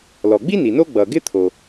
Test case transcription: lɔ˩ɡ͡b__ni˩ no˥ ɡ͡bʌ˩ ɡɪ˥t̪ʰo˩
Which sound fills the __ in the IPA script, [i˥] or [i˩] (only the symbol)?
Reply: i˥